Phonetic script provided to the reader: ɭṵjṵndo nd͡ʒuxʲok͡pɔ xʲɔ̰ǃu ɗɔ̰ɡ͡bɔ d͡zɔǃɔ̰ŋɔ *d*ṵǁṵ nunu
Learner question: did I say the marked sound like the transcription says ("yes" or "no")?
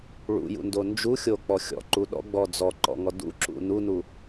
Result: yes